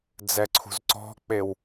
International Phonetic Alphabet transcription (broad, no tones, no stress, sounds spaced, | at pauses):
d͡z ɛ ǀʰ ṳ z ǀ ɔ̤ k͡p e w